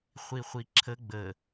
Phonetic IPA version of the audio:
χʷ i χʷ i ǁʰ ə ɡ͡b ə

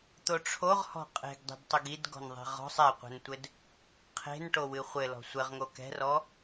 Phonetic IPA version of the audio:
t̪ o ʈ͡ʂʰ o ʁ h ɔ̤ qʼ e̤ ɡ dˤ e̤ d tˤ o ɡ i d ɡ ɔ̤ n ðˤ e̤ ʁ ɔ̤ sˤ ɛ qʷ ɛ̤ n tʷ ɘ d | qʰ e̤ n ʈ o w ɨ χʷ ɘ l ɔ̤ sʷ ɘ ʁ ŋ o k ɛ̤ r ɔ

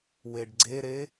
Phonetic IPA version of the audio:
w e ɖ ɡ͡ǀ e ɾ e

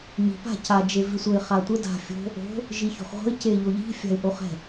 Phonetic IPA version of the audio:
ɲ i̤ p a̤ c a d͡ʒ e v i sʷ ə ɪ̯ χ a tʷ ə d a̤ fʲ o̤ | o̤ | ʒ i ç o̤ χ ʁʷ ə̤ ɪ̯ c e ʎ o ʎ i̤ fʲ a̤ ɪ̯ ʔ o χ ɛ̤

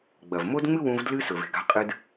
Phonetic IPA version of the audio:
ɡ͡b ɐ˨ v m o˦ d ŋ͡m ɨ˦ w ũ˧ v d l ɨ˦ s ɵ˨ v e̤˨ ɡ a̤˧ qʼ ɨ˧ d

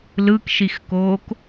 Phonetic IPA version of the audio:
l ɯ k ʃ i x k oː k

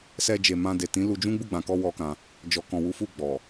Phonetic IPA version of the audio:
s ɛ˧ d͡ʒ e˨ m ã˧ d e˨ t ĩ˨˦ l u˧ d͡ʒ ũ˦ ɡ͡b u˦˨ ɡ͡b ã˨ k ɔ˧ w ɔ˦ k ã˧ | d͡ʒ ɔ˨ k ɔ̃˨ w u˨˦ f u˦˨ ɡ͡b ɔ˨

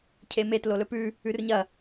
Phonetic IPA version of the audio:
cʰ e m e t l o l ɵ p ʉ | ʉ r ɲ ɐ

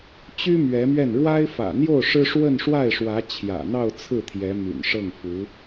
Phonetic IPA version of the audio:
t͡ɕ y˥ m ɥ ɛ˧˥ m ɥ ɛ˥˩ n ɻ w a˥ ɪ̯ f ä̰˨˩ n̪ j o˥˩ ʊ̯ ʂ ɻ̩˥ ʂ w ə˥˧ n ʂ w a˥˩ ɪ̯ ʂ w ä˧˥ t͡ɕʰ j ä̰˨˩ n̪ ɑ˥˧ ʊ̯ t͡sʰ ɹ̩˥˩ t̪ʰ j ɛ˧˥ m y̰˨˩ n ʂ ɤ˥˩ ŋ f u˧˥

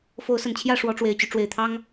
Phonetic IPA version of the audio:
f o˨˦ ʊ̯ s ə˨˩ n t͡ɕʰ j ä˥˨ ʂ w ɔ˨˦ ʈ͡ʂ w e˨˩ ɪ̯ t͡ɕ y˦ ʈ͡ʂ w e˨˩ ɪ̯ t̪ʰ ɑ˦ ŋ

